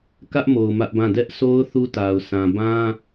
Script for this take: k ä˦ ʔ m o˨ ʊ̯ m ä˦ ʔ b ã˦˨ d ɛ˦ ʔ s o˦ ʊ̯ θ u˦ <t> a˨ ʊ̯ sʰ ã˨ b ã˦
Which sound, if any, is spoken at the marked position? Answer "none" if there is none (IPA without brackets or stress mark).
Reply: t